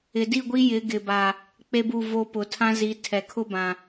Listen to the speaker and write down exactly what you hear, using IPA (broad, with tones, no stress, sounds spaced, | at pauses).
ɪ˨ d i˦˨ ɡʷ i˦ j ɪ˨˦ ɡ ɪ˨ b a˨ | k͡p e˦ b u˦˨ v o˦ p ʊ˨ tʰ ã˦ z i˨˦ tʰ ɛ˨ kʰ ʊ˦ b ã˨